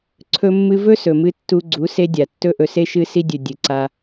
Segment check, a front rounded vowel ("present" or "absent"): absent